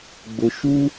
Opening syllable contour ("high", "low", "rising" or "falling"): low